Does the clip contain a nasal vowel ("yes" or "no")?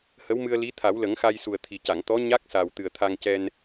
no